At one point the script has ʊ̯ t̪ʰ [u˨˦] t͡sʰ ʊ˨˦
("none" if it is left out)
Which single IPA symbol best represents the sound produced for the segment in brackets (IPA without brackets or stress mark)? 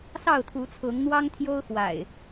u˨˦